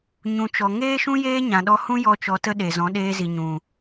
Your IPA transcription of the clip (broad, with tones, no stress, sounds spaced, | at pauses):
ɲ ũ˨ t͡ʃ ɔ˨ ŋ eː˦ ʃ ũ˦ j eː˦ ɲ ã˨ ɗ ɔ˧ h ũ˦ j ɔ˧ t͡ʃ ɔ˧ t ə˦ ɗ e˨ z ɔ̃˨˦ ɗ eː˧ z i˨ ɲ ũ˨